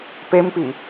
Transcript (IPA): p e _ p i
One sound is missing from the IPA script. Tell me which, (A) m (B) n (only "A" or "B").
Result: A